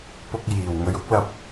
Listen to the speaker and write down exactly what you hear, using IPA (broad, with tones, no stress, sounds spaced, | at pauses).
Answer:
p ʊ˧ k̚ j iː˨˩ w ŋ ɵ˨ ɥ ʊ˥ k̚ l ɐ˧ p̚